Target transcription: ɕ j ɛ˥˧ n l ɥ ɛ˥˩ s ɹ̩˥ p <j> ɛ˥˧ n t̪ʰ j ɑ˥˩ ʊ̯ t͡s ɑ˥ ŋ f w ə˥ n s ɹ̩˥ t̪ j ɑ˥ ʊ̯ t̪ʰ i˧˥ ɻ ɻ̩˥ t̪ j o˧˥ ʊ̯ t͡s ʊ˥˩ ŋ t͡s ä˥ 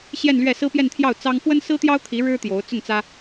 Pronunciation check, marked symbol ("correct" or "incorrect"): correct